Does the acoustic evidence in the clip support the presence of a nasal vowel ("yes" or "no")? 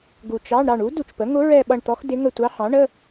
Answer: yes